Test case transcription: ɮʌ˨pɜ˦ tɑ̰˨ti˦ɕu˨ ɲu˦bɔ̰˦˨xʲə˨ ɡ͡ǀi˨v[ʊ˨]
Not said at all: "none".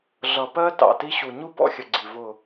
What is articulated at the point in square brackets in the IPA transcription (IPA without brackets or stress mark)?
ʊ˦˨